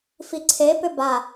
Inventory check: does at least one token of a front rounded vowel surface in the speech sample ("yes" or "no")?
yes